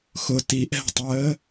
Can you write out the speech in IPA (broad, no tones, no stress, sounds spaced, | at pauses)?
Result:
x ʊ t i ʔ ɛ̤ tˤ əː